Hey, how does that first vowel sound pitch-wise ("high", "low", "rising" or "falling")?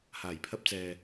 low